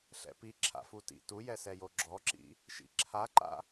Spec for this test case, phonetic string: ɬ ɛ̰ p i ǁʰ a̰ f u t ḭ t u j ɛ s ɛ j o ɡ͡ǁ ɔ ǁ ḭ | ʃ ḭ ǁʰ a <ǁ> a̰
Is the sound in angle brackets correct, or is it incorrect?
incorrect: ǃ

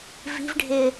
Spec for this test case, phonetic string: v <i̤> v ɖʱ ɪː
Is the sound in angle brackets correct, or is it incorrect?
correct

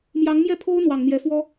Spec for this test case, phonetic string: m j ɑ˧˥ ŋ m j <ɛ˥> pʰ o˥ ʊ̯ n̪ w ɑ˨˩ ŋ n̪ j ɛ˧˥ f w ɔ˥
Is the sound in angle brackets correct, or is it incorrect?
incorrect: ɛ˥˩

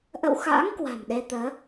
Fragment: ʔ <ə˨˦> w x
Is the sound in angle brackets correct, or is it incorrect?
incorrect: ə̰˧˨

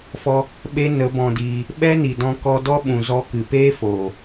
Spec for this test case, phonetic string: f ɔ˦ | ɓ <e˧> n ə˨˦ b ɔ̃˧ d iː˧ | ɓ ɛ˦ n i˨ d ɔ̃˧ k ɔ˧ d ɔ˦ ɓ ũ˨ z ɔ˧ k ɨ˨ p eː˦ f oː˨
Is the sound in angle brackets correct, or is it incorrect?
incorrect: e˦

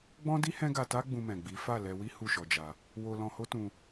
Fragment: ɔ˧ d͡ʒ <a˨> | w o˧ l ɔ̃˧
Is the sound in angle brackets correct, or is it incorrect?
incorrect: a˧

